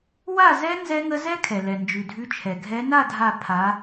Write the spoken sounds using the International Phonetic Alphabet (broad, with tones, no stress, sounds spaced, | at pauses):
w a˥˨ z ɛ˦˥ n z ɛ˦˥ ŋ ə˦˥ z ɛ˦˥ kʰ ɛ˩ l ɛ˩ n d͡ʒ ʉ˩ dʱ ʉ˨˦ t͡ʃʰ ɛ˩ ɡʱ ɛ˨˦ n a˥˨ dʱ a˧˩ pʰ a˨˦